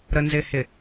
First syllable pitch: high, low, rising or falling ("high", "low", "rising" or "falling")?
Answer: low